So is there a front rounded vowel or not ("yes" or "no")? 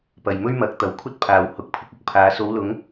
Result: no